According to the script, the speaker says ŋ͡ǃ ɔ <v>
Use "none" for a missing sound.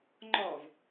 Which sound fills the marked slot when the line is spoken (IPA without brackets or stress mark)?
v